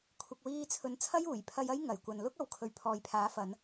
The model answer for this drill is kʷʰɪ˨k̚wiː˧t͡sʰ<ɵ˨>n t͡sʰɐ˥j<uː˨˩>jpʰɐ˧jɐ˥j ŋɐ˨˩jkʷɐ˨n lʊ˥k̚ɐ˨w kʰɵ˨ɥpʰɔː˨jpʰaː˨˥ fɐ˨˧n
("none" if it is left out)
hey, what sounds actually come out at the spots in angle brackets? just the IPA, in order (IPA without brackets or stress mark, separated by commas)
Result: ɵ˨˧, uː˨˩